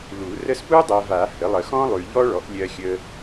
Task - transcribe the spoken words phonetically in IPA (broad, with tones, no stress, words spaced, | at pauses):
lu˨˩˦ rə˥s pu˥dˤɜ˨va˨˩˦ hə˩˥ lˠə˨xɔ̃˥ lˠʉ˨ʎɔ˥ɭɔ˩˥ʔ lʲɜ˨xʲə˨